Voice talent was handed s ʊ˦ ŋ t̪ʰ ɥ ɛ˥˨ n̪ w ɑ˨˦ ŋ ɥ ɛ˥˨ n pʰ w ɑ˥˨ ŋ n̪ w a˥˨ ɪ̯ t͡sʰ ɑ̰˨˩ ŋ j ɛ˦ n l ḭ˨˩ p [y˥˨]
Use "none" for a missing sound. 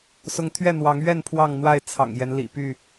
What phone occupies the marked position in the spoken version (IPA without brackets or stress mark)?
y˥˨